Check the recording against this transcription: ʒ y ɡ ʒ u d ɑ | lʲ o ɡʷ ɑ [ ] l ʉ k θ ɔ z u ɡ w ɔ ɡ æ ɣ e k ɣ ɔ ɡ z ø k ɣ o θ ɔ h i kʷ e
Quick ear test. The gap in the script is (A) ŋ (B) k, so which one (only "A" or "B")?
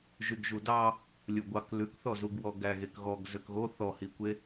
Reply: B